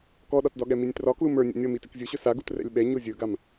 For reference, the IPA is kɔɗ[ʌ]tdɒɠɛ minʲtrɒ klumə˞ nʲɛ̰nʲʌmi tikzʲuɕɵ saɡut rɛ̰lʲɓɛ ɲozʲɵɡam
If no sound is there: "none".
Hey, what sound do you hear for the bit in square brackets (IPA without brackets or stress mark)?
ɒ